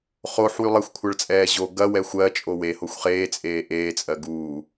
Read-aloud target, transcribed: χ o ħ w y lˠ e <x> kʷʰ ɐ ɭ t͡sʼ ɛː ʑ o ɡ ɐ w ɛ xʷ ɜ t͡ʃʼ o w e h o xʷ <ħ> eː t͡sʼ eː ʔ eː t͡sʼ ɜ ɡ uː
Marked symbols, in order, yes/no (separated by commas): no, no